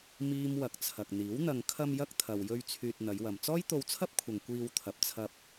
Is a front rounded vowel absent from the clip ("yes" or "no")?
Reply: no